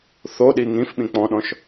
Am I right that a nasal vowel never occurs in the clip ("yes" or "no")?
no